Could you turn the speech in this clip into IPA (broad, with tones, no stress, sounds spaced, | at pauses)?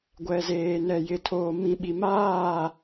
ɡʷ ɛ˨ z eː˨ n ɛ˨ j ɪ˨ tʰ oː˨ m ĩ˨ ɓ i˨ m aː˦˨